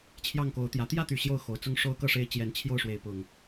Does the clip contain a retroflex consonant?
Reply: yes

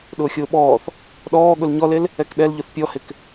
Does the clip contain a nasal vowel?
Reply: no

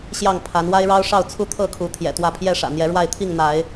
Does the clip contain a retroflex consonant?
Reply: yes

